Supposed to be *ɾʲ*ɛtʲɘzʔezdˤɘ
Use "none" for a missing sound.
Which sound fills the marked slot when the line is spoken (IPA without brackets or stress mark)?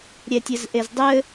ɾʲ